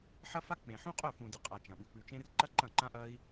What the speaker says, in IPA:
ħ ɐ˦ f a˦ k͡p ẽ˨ ħ ũ˦ qʼ ɵ˦˨ f ũ˨ d ɨ˨ qʼ a˨ t͡ʃ ɐ̃˨ ɓ ʉ˨˦ k͡p ʉ˧ t͡ʃ ẽ˧ r ǃ ɐ˦ ǃ ɐ̃˦˨ ǃ ã˦ ʔ ɐ˦ i̯

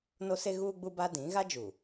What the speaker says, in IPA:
n o˦ s e˦ ɣ uː˦ ɡ͡b u˦ b a˦ d ĩ˨˦ ɣ a˦ d͡ʒ u˨

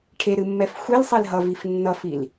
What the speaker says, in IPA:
ʈʰ e ɾ ɨ mː ɛ f xʷ e l sˤ e l ɦ ʌ v i f nː ʌ f i l

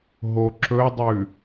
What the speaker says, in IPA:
ɦ o ǁ ɵ dˤ ʉ

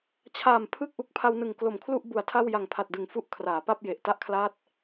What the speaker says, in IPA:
t͡ɕʰ aː˨˩ m pʰ ɯ˥˩ k̚ ʔ u˨˩ k̚ pʰ a˧ w n ɯ˨˩ ŋ k l o˨˩ m kʰ l u˥˩ ʔ b u˨˩ a̯ tʰ a˥˩ w j a˨˩ ŋ pʰ a˨˩ t̚ d ɯ˨˩ ŋ f u˦˥ ʔ kʰ r aː˩˦ p a˥˩ p̚ j e˨˩ ʔ t a˦˥ ʔ kʰ l aː˦˥ t̚

